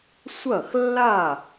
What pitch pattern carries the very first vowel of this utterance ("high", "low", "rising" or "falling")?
falling